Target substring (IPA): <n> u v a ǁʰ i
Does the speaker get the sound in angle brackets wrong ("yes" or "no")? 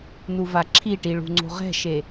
no